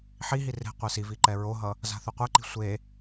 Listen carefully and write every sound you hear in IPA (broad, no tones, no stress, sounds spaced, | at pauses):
ħ i ɦ i r e̤ qʷ e s i v i ǃ ɛ ɹ o ɦ ʌ | z a̤ θ u qʷ ɛ ǃ i̤ sʷ e